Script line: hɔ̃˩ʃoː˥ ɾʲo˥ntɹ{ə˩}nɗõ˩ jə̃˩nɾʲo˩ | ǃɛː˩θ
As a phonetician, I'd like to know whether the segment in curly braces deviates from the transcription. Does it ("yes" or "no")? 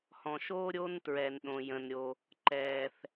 yes